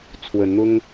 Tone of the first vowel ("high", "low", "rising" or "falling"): rising